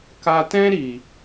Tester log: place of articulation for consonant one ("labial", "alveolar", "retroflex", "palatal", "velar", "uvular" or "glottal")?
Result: velar